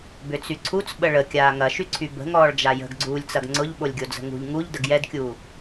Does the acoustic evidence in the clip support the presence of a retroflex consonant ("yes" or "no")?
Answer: yes